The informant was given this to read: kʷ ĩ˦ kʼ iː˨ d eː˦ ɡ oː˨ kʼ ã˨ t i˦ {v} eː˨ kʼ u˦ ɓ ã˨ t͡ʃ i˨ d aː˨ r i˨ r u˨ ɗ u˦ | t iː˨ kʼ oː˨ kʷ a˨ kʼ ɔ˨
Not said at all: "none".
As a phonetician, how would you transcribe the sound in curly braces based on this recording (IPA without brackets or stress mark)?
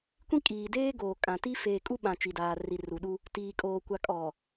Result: f